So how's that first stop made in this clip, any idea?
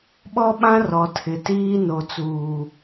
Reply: implosive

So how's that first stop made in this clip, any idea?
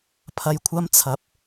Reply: aspirated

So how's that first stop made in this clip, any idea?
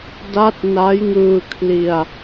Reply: plain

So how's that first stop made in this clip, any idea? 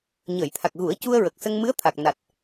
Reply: aspirated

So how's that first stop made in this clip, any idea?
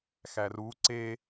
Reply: click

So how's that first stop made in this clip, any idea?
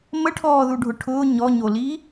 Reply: aspirated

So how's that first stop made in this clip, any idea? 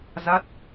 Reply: plain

